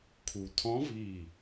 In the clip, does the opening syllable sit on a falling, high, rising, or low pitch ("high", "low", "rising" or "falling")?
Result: low